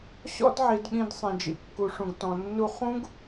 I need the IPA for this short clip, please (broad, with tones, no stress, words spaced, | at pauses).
ɕɔ̰˦dʕi˧dɠĩ˧d sˤẽ˧d͡ʒḭ˧kːu˧ ʂũ˧ɡtɔ̃˧nːu˦ χũ˦ɡ